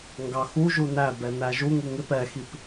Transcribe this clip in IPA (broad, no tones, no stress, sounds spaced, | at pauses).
ŋ ɡ ɑ x u ʒ u n æ b ɛ n æ ʒ u ŋ u ŋ ɪ p ɛ x i p